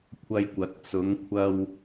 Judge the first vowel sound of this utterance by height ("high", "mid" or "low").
low